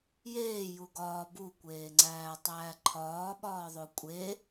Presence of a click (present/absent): present